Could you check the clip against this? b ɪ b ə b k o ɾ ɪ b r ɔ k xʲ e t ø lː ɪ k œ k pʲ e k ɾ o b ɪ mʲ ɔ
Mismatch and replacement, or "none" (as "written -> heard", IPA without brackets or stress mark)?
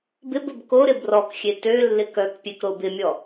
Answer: none